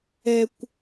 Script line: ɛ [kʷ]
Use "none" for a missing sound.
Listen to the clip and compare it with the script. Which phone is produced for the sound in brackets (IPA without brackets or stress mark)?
kʷ